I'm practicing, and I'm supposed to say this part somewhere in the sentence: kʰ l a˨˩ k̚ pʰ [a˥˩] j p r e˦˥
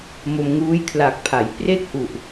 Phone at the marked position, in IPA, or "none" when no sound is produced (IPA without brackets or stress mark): a˩˦